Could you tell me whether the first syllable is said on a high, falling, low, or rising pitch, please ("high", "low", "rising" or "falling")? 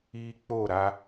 high